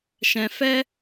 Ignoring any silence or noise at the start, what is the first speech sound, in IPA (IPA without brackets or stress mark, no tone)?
ʃ